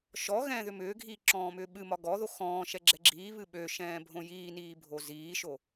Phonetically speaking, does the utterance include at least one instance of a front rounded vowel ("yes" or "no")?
yes